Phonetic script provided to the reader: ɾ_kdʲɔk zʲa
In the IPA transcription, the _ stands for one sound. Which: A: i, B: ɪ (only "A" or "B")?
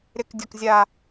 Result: B